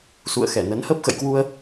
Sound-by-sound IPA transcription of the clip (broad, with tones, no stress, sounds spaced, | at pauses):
s ṵ˧˨ ə̯ x ɛ˧˩ n ə˨˦ n h ə˦˥ p̚ x ə̰˧˨ j k w u˧ ə̯